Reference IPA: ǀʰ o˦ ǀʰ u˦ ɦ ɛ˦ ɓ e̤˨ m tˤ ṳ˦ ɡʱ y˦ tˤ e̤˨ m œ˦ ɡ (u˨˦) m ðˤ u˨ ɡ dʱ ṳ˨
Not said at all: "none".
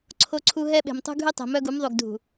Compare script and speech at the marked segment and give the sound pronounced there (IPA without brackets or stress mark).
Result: u˨˦